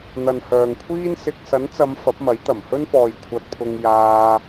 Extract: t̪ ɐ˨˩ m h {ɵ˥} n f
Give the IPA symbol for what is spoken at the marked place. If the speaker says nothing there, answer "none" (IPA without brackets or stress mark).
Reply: ɵ˥